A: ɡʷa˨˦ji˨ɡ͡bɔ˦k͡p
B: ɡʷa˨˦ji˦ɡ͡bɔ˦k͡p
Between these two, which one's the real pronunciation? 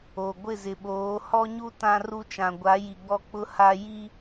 A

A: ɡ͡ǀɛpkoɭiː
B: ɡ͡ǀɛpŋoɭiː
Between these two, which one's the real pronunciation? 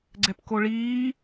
A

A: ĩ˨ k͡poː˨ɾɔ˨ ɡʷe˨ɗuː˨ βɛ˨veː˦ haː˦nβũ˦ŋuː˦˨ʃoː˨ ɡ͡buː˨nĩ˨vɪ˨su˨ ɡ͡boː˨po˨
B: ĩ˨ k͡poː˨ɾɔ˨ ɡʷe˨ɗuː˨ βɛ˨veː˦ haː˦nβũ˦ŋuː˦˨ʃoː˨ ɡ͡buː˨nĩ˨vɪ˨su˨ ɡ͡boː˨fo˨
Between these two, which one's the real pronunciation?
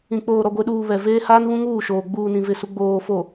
B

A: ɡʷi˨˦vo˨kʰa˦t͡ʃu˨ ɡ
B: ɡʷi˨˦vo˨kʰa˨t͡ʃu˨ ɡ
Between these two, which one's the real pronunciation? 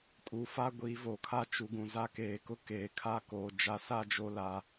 A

